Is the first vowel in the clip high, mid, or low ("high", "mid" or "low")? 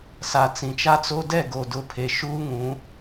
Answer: low